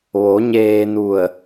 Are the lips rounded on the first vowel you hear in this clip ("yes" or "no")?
yes